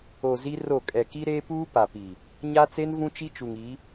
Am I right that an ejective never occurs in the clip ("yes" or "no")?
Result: no